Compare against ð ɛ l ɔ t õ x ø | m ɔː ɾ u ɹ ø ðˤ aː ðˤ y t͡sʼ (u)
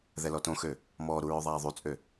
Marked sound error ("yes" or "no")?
yes